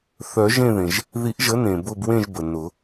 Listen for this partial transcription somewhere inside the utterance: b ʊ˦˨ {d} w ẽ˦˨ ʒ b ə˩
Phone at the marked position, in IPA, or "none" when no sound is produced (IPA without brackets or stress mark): b